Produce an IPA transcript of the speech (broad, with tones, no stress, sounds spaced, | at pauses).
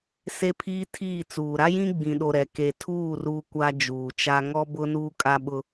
s e˦ pʰ iː˦ tʰ iː˦˨ t͡s uː˨ ɾ a˦ j ĩ˦ ɡ͡b ĩ˨ ɗ o˨ ɾ ɛ˨ k e˨ tʰ uː˦˨ r uː˦ kʷ a˦ d͡ʒ uː˨ t͡ʃ a˦ ŋ ɔ˦ b ʊ˦ n uː˦ kʼ a˦ ɓ ʊ˦